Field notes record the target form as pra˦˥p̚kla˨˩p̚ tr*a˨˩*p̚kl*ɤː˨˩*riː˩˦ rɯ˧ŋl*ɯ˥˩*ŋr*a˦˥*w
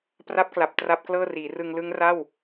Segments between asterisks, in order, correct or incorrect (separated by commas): incorrect, incorrect, incorrect, incorrect